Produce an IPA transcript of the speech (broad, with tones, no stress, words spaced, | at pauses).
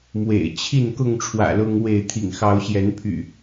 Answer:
mwḛ˨˩ɪ̯ t͡ɕʰi˥˨n kʊ˥˨ŋʈ͡ʂʰwä̰˨˩ lʊ˦ŋwe˥˨ɪ̯ t̪ʰḭ˨˩ŋxɑ˨˦ʊ̯ɕjɛ˨˦npʰy̰˨˩